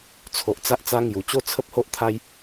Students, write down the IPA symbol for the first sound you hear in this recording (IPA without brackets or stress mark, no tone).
t͡sʰ